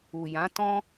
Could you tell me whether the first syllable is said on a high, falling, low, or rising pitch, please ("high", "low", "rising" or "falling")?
low